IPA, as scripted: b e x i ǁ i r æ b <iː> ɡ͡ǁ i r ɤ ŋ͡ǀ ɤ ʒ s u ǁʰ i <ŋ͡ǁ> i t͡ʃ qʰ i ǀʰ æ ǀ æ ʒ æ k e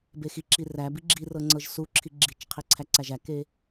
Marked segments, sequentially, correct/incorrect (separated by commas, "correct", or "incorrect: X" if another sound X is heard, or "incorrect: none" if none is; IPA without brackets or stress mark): incorrect: i, incorrect: ɡ͡ǁ